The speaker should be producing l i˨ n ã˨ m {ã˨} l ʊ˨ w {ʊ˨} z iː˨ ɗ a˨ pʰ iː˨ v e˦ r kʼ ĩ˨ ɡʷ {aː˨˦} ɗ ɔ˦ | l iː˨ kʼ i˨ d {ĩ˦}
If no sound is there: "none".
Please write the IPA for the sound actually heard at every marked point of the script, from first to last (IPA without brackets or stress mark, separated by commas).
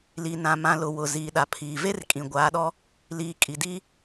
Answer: ã˨, ʊ˨, aː˨˦, i˦